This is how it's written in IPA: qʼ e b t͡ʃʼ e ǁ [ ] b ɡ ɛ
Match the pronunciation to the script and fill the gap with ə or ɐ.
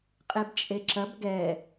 ɐ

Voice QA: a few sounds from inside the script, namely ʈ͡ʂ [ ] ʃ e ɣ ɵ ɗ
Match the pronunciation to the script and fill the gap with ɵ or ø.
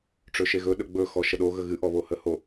ɵ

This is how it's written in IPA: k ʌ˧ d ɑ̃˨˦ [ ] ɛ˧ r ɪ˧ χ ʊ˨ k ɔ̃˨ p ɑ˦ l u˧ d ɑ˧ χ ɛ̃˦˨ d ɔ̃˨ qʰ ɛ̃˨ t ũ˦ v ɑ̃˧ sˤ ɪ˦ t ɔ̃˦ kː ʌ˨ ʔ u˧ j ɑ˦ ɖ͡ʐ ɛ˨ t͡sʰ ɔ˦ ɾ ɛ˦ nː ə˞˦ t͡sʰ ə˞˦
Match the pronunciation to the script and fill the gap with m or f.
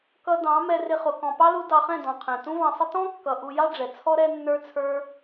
m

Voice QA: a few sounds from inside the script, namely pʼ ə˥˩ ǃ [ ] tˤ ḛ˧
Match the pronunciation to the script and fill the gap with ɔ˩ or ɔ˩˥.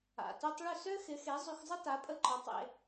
ɔ˩˥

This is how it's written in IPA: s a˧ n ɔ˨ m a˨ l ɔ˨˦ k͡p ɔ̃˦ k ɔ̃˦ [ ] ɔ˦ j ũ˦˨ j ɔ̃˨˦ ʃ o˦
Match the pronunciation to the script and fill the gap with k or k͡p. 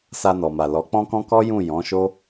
k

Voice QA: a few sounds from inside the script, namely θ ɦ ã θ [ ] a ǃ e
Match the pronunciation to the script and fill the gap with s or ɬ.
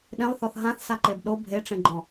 s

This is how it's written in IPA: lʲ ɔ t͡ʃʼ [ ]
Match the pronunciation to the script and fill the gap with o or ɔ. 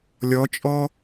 ɔ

